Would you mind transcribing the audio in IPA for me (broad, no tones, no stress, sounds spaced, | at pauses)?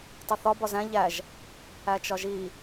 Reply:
tˤ i θ ɒ b ɒ z æ̃ ʎ æ ʒ | æ t͡ʃ ɒ ʒ i